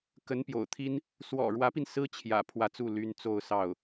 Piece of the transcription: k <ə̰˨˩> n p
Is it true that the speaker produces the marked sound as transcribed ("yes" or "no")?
no